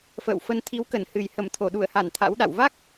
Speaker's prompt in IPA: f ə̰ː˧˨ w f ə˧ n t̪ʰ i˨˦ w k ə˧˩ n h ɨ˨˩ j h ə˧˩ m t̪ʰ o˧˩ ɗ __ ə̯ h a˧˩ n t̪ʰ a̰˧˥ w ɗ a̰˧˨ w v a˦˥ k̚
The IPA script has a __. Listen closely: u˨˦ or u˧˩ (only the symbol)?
u˧˩